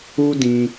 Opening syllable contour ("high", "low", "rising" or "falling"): high